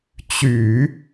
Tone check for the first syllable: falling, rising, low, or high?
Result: low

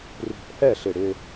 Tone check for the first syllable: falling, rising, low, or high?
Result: low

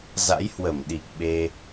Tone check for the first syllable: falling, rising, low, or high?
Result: rising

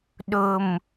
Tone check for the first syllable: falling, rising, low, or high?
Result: low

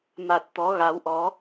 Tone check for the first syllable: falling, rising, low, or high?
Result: low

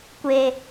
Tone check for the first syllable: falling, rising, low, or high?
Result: low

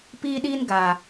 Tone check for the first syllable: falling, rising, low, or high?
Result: high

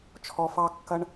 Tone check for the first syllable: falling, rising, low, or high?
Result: low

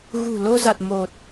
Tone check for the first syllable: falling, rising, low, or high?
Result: low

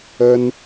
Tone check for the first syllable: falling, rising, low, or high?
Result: high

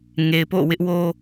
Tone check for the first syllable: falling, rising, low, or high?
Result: low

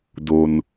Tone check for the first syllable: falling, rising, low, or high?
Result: low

